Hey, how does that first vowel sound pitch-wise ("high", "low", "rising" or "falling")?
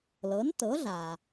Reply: rising